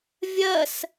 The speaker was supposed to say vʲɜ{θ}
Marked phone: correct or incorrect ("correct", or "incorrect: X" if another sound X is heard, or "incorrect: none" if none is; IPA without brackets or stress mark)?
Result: incorrect: s